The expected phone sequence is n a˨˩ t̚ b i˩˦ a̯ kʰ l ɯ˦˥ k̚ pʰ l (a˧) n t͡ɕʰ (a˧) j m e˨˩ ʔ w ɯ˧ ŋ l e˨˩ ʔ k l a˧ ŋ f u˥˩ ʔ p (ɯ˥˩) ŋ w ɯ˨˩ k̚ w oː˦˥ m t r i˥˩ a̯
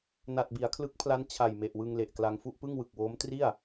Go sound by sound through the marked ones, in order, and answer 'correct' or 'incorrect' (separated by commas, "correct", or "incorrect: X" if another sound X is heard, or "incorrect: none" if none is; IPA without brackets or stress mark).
incorrect: a˦˥, incorrect: a˨˩, correct